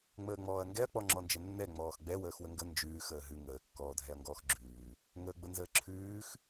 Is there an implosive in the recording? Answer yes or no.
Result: no